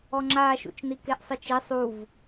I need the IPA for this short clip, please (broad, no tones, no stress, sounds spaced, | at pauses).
ɔ ŋ͡ǁ aː ʃ ṵ t͡ʃ n i k e ʔ sˤ ɯ t͡ʃ i sˤ u v